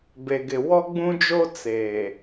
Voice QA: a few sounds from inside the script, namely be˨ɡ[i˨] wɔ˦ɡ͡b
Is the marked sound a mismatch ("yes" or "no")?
yes